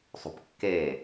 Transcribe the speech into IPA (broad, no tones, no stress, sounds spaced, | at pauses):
sˤ ṳ p kː eː